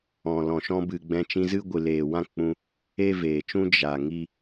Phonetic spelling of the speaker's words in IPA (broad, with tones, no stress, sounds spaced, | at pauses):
ɔ̃˨ l ɔ̃˨ ʃ ɔ̃˧ b ɨ˨ ɡ͡b ɛ̃˧ t͡ʃ ĩ˧ z ɨ˦ ɡʷ ɨ˨ l eː˨ w ã˦ k͡p ũ˧ | e˦ v eː˨ t͡ʃ ũ˦ d͡ʒ a˨ ŋ i˦